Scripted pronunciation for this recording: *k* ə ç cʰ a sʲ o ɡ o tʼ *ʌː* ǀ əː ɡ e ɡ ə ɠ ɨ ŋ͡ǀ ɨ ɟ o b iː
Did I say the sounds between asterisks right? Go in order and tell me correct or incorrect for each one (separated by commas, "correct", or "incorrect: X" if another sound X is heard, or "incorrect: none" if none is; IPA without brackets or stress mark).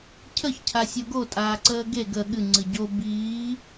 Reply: incorrect: cʰ, incorrect: aː